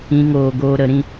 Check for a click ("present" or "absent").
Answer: absent